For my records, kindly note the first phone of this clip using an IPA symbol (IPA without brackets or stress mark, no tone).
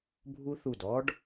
bʱ